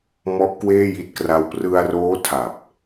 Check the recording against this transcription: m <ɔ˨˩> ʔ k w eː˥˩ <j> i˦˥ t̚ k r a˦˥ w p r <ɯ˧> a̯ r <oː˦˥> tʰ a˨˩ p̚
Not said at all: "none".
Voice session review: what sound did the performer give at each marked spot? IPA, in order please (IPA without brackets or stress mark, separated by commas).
ɔ˦˥, j, ɯ˧, oː˦˥